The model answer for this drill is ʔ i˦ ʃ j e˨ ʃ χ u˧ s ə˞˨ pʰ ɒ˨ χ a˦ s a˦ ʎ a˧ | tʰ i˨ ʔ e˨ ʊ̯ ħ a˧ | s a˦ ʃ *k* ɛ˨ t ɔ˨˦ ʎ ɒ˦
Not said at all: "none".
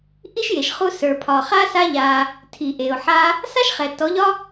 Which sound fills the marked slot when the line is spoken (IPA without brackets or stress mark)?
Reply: χ